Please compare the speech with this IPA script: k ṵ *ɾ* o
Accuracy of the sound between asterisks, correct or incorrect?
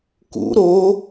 correct